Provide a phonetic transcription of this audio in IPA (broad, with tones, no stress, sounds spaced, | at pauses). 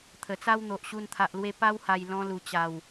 t̪ʰ ə˨˩ t͡s a˦ w n̪ o˨ ʔ ɕ u˧ n t̪ʰ a˨ ʔ l w e˧ p a˦ w h a˨˩ j l ɔ̃˧ l u˨˩ t͡ɕ a˨˩ w